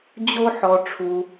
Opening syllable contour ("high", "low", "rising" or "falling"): high